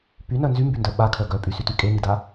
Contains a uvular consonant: no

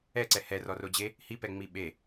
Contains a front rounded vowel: no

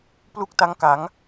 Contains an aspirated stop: no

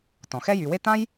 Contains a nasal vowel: yes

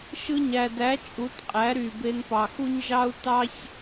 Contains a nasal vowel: no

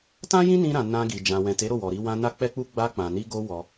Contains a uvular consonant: no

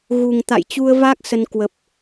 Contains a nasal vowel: no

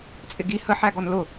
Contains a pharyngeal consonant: yes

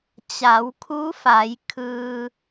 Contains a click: no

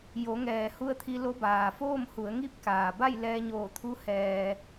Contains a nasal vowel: no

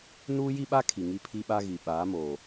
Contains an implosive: yes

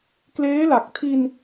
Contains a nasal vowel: no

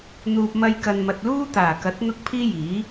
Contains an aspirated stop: yes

